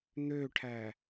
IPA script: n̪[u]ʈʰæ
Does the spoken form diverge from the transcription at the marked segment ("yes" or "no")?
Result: yes